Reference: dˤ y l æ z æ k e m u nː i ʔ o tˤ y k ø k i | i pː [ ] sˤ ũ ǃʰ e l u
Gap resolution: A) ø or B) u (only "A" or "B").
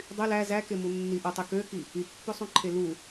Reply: A